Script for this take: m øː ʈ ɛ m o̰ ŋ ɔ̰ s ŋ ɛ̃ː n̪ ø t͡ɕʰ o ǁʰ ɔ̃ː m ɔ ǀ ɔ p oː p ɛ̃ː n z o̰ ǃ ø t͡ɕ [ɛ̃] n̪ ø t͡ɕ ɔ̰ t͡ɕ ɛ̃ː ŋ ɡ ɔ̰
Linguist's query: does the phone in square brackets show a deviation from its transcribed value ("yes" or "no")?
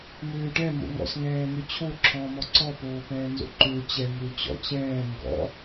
yes